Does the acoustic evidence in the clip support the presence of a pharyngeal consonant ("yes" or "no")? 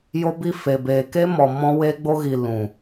no